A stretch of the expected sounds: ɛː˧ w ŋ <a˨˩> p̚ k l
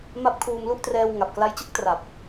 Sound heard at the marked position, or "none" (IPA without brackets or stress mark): a˨˩